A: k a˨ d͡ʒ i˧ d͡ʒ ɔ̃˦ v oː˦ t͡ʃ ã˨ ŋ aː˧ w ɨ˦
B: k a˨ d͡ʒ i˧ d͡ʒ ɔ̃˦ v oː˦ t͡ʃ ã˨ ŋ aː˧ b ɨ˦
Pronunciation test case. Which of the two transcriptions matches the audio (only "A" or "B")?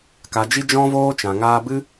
B